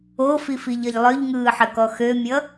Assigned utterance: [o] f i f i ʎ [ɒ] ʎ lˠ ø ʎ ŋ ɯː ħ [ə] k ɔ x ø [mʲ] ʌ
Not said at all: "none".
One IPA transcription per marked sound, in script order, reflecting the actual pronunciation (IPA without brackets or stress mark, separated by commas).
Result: o, ʌ, ə, mʲ